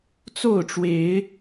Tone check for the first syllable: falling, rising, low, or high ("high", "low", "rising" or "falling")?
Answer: falling